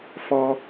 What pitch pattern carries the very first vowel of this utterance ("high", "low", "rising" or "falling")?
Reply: high